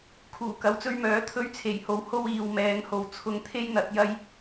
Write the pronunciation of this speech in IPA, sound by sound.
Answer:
kʰuː˨˩kɐ˨˥wt͡sɵ˧ɥmœː˨˥ t̪ʰɵ˥ɥ t͡sʰe˨˩jho˨˥w ho˥w iː˨wmɛː˨˧ŋho˨w t͡sʰʊ˧ŋt̪ʰe˥jn̪ɐ˨˥t̚ jɐ˥j

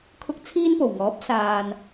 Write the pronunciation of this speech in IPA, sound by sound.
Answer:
kʰʊ˥k̚ t͡sʰiː˥npo˨˩wŋɔː˨˥p̚ saː˨n

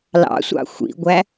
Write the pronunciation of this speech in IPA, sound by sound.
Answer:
lɑ̰sʷɑ̰ xʷḭɡʷæ

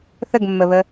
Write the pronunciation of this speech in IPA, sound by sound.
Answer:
θəɡmːəβə

